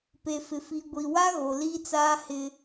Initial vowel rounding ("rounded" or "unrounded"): unrounded